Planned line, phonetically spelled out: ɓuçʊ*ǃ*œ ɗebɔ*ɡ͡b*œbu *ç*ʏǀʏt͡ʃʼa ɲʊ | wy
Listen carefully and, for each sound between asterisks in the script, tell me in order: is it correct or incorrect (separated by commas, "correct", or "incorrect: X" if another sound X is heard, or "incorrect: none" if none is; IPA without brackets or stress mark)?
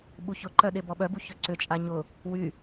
correct, incorrect: ɓ, correct